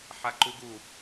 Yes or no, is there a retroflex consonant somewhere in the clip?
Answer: no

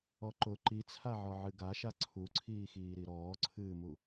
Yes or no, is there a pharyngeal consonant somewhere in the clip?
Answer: yes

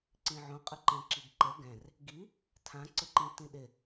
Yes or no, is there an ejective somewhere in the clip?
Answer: yes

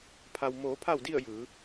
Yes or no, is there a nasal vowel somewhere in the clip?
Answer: no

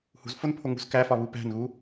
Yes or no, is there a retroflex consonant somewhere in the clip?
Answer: no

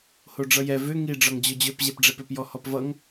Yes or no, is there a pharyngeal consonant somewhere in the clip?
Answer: no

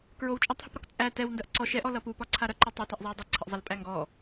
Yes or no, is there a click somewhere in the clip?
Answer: yes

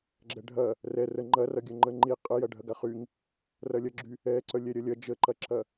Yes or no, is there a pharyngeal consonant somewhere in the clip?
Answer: no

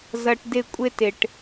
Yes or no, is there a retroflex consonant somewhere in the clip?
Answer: yes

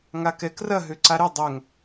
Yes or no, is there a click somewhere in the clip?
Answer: yes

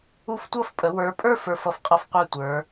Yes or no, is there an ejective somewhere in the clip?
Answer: yes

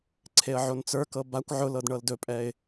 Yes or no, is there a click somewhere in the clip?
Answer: yes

